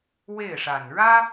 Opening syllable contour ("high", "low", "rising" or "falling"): falling